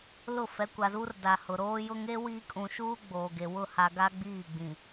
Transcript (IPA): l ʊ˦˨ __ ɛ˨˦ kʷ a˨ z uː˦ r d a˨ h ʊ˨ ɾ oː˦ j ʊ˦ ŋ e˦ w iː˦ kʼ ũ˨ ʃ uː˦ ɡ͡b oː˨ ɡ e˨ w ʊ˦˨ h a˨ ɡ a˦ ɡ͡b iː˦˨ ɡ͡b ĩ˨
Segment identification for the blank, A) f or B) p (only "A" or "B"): A